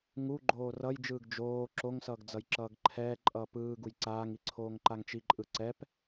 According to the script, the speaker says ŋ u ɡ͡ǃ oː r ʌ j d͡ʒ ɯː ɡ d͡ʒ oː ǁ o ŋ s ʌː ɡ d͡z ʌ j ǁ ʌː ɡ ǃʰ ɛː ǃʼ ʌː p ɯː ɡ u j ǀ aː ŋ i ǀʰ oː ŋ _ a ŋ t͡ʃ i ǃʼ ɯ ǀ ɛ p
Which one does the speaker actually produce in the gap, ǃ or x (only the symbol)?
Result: ǃ